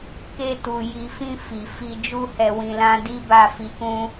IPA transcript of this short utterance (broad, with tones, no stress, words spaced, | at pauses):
ke˧tu˨ ji˨fĩ˧ fi˨ fi˧d͡ʒu˦hɛ˧ wĩ˧lã˦ di˦ba˦˨fi˧kũ˦